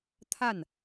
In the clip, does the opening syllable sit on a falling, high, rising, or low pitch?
falling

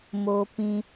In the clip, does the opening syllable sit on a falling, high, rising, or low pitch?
low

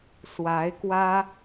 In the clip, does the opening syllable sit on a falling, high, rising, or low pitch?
rising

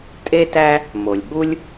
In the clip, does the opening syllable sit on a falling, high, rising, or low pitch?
high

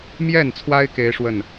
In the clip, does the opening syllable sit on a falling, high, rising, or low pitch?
falling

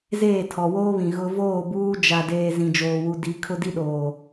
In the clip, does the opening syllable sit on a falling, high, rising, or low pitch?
falling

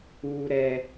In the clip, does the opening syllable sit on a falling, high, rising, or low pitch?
low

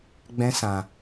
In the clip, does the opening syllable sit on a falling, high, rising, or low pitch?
high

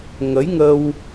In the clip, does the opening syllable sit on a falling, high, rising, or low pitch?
rising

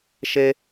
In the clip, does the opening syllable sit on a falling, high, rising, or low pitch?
high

